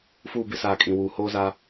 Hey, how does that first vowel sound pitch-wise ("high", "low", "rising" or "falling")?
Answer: falling